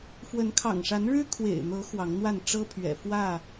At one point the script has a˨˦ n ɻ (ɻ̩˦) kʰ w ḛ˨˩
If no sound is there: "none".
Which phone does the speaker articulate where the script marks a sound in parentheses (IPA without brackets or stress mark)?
ɻ̩˦